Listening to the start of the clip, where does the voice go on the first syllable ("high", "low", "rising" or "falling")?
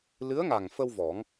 rising